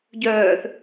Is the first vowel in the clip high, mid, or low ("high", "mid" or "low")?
mid